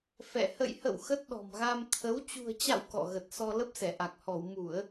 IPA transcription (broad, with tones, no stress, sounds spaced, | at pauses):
f ɛ̰˧˨ h ə̰˧˨ j h ə̰˧˨ w x ə˦˥ t̚ ɗ ɔ̤˨˩ m ɣ a˧ m t̪ʰ ə˨˦ w t͡ɕ ṳ˨˩ ə̯ t͡ɕ a̰˧˨ w k ɔ̰˧˨ ɣ ə˨˩ t̚ s ɔ˧ l ə˦˥ p̚ s ɛ˧˩ ʔ a˨˩ k̚ h ɔ˧˩ w m u˧˩˨ ə̯